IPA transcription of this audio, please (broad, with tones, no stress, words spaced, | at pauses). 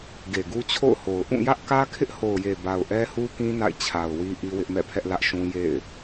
ɡe˨ɡu˦t͡ɕʰo̰˦˨ʊ̯ho˨ʊ̯ ʔũ˦˨jä˦ʔkä˦ kʰɪ˦ʔho˨ʊ̯je˨ ba˨ʊ̯ʔɛ˦hu˦kĩ˦ na̰˦˨ɪ̯ t͡ɕʰa˨ʊ̯wi˦ ʔi˦wɪ˦ʔmɛ̰˦˨pʰɛ˦ʔ lä˦ʔʃũ˦ jḛ˦˨ɪ̯